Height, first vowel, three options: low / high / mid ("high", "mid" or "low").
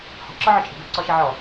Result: mid